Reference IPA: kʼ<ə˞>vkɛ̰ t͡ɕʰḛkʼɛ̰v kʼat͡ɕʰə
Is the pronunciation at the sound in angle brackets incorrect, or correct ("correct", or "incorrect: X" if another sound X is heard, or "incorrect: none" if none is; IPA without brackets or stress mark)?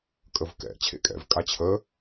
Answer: incorrect: ə